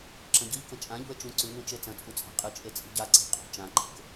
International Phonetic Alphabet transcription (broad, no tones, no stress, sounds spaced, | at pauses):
ǁ ɐ̃ ɟ ɨ ʎ k ɐ̃ t͡ʃʼ ã ʎ ṳ ə̯ t͡ʃ ũ ǀ ʉ n ũ t͡ʃ e t͡s ɐ̃ t͡sʼ u t͡sʼ a̤ qʼ ɨ t͡ʃʼ e t͡sʼ i̤ ɟ a ǀ e̤ qʼ ṳ t͡ʃ ã ǃ e̤ k